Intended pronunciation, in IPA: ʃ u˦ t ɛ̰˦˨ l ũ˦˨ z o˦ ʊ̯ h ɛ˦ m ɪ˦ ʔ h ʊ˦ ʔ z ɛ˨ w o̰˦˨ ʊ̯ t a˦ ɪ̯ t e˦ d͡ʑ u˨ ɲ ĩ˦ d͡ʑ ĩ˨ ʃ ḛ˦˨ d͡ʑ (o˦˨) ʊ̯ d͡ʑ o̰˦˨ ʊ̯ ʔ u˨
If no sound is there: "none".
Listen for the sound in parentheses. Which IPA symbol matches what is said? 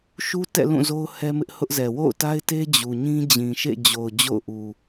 o˨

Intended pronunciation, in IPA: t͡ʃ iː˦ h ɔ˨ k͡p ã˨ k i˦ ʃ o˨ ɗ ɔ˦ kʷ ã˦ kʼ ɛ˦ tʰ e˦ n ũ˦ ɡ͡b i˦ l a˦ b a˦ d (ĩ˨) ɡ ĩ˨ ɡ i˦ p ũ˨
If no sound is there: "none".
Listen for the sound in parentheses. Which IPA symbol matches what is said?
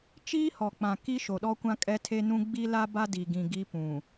i˨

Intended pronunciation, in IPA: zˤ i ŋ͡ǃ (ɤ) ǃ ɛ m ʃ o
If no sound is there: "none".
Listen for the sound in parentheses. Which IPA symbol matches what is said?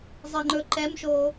ɵ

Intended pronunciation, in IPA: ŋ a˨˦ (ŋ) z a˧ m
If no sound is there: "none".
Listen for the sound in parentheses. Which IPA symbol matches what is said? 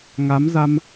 m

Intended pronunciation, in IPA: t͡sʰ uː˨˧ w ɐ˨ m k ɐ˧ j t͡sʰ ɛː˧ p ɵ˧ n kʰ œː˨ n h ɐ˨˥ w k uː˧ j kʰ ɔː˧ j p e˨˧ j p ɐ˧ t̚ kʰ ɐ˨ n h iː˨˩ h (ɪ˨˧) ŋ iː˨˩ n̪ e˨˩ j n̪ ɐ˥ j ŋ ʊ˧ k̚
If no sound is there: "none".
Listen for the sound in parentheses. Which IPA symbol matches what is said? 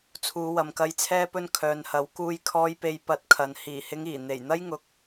ɪ˨˧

